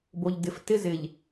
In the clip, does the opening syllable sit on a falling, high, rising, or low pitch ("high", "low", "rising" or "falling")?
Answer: low